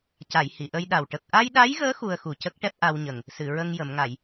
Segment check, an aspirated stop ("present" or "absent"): absent